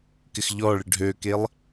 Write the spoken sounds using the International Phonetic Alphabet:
k ɪ x ʎ ɔ ɭ ɪ ɖʱ ø k e lˠ

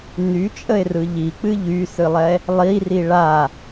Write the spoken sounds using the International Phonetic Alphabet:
n y t͡ʃʼ ə e̯ r ɯ ʎ i k͡p ɨ ʎ y s ɨ lˠ ɛ | lˠ i r i ɭ a

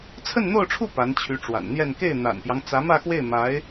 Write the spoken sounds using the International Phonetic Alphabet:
t͡sʰ ə˥˧ n n̪ o˥˧ ʊ̯ ʈ͡ʂʰ u˥˩ p a˧˥ n t͡ɕʰ y˧˥ ʈ͡ʂ w a̰˨˩ n n̪ j ɛ˥˧ n k e˥˩ ɪ̯ n̪ a̰˨˩ n p j ɑ˦ ŋ t͡s ä˧˥ m ä˥˧ x w e˥˩ ɪ̯ m a˧˥ ɪ̯

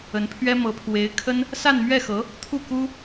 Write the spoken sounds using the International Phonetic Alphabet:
ə˧˥ n pʰ ɥ ɛ˥ m ɤ˧˥ pʰ w e˧˥ ɪ̯ kʰ ə˥ n | s a˥˧ n m ɥ ɛ˥˩ x ɤ˧˥ | t̪ʰ u˥˩ k u˥

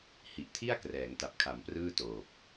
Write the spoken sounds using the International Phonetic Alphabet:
h i˨˩ ʔ tʰ i˥˩ a̯ k r ɛː˩˦ ŋ t a˨˩ p̚ kʰ a˩˦ m p r ɯː˥˩ t oː˨˩ p̚

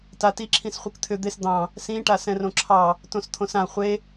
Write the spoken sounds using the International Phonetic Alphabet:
t a t i ǁʰ ĩ s χʷ i k t̪ʰ ʏ d̪ e s d̪ ɑ̃ | s ĩ ʈ a s ɛ̃ r õ ǁʰ ɑ | t õ s t̪ʰ õ s ã χʷ e

